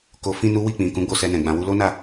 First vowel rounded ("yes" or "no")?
yes